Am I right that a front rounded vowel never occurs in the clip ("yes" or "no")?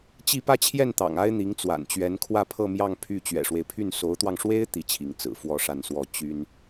no